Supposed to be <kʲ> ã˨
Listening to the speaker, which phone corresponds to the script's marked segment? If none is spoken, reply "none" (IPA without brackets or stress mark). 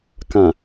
k